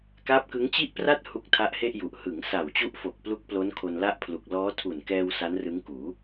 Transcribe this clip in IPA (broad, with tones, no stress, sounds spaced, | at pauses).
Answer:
k aː˦˥ p̚ k ɯ˦˥ ŋ t͡ɕ i˥˩ ʔ p r a˥˩ t̚ h u˦˥ k̚ tʰ a˦˥ ʔ h e˥˩ ʔ j u˨˩ ʔ h ɯ˩˦ ŋ s a˨˩ w t͡ɕ u˦˥ ʔ f o˨˩ k̚ p l u˦˥ k̚ p l o˦˥ n kʰ o˧ n l a˥˩ ʔ pʰ l u˨˩ k̚ l ɔː˦˥ tʰ u˨˩ n k ɛː˧ w s a˦˥ n r ɯ˦˥ ŋ k uː˩˦